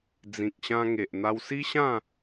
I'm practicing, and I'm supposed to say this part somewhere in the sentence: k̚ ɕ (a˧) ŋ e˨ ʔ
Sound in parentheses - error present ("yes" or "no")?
yes